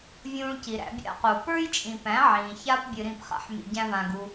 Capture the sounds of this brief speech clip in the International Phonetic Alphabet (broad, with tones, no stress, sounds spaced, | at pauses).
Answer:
vʲ ũː˧ ɭ c i˨ ɾ æ̰˧ bʲ a̰˦ q u˨ p ə˞˦ j t͡ʃʼ ĩ˨ p æ̃˨˦ ʕ ĩː˨ ç a˦ p bʲ ɨ˧ ɾ ĩ˦˨ p χ a̰˦ ħ m ḭ˧ ɟ æ̃˦ v ã˧ ɡ u˦